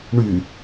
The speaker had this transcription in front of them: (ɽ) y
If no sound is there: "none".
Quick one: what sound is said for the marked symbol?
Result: ɳ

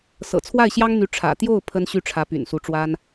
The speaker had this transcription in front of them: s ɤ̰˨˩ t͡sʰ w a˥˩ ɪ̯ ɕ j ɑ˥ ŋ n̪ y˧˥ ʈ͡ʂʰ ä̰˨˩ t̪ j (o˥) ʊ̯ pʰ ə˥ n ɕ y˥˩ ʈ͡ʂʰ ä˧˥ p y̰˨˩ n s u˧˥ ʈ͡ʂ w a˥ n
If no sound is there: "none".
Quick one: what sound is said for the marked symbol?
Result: o˥˩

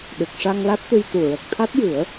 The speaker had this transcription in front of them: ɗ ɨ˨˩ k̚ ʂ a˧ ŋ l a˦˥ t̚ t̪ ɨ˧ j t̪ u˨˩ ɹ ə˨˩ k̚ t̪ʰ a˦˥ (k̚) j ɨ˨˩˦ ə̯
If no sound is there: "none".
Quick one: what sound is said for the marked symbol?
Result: t̚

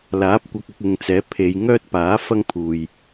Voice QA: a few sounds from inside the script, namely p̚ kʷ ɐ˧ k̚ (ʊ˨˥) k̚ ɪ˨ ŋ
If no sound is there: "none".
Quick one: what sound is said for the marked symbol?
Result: ʊ˧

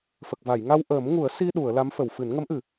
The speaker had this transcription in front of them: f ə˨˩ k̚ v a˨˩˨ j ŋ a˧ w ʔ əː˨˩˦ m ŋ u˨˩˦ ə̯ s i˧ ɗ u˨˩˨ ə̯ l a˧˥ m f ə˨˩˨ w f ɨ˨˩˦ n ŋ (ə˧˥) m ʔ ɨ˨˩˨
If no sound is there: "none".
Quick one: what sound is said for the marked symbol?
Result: ə˧˥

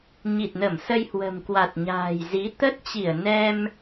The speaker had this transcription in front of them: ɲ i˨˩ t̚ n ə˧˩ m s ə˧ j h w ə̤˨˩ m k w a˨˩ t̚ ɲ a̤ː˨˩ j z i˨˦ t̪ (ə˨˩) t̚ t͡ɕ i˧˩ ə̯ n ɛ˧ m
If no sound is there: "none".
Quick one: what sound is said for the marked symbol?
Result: ə˦˥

